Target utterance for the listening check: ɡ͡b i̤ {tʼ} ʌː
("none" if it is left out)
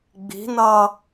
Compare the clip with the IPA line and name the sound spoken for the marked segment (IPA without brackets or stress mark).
n